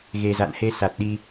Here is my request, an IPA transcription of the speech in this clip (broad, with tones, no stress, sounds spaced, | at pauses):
ɣ e˨˩ z a̰˧˨ n h e˧ s a˨˩ t̚ ɗ i˧